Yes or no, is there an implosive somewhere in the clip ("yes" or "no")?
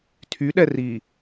yes